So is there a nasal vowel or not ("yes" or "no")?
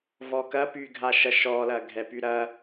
no